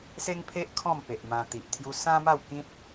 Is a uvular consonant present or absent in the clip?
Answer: absent